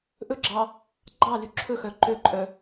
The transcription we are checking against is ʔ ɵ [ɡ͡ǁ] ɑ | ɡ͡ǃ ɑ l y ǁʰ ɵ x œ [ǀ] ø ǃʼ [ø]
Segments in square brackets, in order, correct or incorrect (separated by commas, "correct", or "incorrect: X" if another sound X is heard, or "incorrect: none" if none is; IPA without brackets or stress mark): correct, incorrect: ǃ, incorrect: œ